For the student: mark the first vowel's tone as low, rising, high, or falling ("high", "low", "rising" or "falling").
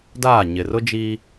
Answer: falling